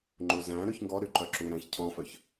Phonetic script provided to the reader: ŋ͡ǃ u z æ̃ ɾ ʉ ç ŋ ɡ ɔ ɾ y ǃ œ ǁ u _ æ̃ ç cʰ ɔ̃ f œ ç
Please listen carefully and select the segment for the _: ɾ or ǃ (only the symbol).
ɾ